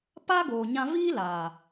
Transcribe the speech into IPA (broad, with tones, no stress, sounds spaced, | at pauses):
p aː˦ ɡ oː˨ ɲ ã˧ v iː˦ l aː˨